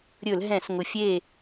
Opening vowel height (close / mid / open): mid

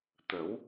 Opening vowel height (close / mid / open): mid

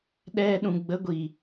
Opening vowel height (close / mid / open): mid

